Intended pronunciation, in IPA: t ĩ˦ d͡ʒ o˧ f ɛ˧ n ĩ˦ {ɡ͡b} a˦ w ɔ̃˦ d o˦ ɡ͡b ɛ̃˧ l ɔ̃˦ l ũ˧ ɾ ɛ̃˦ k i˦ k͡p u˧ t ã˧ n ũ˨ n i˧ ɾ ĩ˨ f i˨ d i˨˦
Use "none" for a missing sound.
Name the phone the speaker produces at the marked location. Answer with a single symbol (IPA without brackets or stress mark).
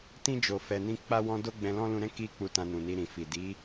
k͡p